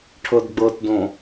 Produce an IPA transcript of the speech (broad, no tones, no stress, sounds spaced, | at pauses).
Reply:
ʈʰ ɤ d ɡ͡b ɤ t d õ